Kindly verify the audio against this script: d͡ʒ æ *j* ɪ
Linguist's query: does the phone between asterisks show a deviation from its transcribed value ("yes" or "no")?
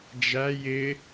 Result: no